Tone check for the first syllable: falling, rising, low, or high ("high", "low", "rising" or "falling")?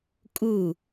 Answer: falling